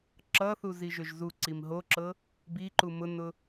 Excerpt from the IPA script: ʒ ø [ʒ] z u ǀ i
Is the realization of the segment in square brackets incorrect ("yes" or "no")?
no